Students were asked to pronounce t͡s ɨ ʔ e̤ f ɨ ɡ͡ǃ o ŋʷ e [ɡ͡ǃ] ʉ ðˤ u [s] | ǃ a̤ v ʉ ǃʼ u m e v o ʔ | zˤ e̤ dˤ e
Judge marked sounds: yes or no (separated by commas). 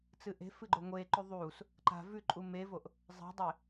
no, yes